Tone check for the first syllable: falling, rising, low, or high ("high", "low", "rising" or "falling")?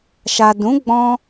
low